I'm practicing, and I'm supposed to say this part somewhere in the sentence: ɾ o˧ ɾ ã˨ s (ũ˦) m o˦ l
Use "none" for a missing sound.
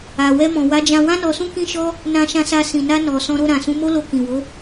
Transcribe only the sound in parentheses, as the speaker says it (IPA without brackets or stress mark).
ũ˨˦